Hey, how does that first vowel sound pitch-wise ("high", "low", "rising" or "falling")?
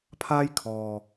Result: high